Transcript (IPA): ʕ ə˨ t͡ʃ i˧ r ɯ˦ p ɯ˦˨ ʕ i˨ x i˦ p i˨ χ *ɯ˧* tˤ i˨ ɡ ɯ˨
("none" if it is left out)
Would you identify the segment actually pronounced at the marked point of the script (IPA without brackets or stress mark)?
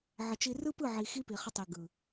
ə˧